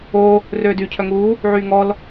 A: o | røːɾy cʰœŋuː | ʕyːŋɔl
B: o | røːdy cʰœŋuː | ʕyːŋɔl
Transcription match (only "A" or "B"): B